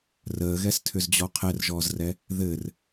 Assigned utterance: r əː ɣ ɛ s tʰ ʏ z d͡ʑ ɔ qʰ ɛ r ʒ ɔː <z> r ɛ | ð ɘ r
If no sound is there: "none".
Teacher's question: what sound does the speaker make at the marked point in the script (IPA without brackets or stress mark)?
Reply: z